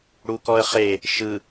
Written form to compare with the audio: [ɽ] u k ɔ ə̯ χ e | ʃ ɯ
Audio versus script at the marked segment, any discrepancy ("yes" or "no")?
no